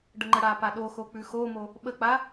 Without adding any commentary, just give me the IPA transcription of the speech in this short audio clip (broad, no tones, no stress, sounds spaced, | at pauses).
ɖ ə ŋ͡ǃ ə ɽ a p a ɗ o x o k͡p ʉ x o m o | ɓ ə k͡p a